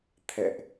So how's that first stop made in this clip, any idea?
aspirated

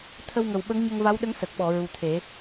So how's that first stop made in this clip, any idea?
aspirated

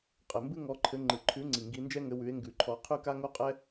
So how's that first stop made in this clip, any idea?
ejective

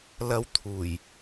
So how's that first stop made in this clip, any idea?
aspirated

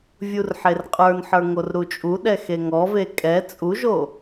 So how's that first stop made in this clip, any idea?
ejective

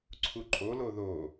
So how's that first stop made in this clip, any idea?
click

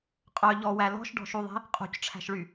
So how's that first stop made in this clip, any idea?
ejective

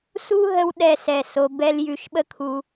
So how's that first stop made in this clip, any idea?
implosive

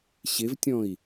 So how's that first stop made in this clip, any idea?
plain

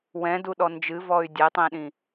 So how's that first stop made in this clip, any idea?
plain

